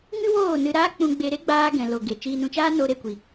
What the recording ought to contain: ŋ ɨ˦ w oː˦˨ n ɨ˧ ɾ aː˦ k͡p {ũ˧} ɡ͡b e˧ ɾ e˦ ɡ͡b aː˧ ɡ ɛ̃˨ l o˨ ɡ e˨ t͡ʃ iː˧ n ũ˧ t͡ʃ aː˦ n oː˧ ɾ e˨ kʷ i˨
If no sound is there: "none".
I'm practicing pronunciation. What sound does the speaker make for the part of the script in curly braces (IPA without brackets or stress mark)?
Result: ũ˧